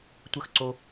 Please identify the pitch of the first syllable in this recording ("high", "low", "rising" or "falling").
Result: falling